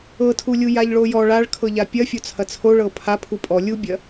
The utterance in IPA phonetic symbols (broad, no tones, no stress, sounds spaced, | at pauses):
ɤ tʰ u lʲ u j a ʎ ɭ o j ɔ ɭ a ɭ kʰ ɤ ʎ a pʲ ɐ fʲ o t͡sʰ ɐ t͡sʰ o ɭ ɤ pʰ a pʰ u pʼ ɔ lʲ u bʲ ɐ